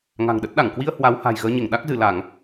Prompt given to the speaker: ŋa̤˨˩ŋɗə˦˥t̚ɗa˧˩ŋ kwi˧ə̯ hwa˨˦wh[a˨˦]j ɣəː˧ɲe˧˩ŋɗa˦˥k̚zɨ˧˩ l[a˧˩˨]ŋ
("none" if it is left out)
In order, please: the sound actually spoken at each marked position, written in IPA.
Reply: a̤˨˩, a˧˩˨

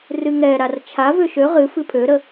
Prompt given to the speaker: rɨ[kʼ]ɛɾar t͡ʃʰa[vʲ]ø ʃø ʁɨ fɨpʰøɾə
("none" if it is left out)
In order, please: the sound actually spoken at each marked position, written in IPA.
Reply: ŋ, v

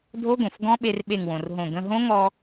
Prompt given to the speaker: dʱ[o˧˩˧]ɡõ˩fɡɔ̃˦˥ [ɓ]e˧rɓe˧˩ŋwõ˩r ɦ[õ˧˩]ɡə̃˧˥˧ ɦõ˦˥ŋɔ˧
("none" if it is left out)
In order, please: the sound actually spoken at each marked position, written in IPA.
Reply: o˦˥, ɓ, õ˧˩

